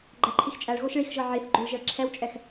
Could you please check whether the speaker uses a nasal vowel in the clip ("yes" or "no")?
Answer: no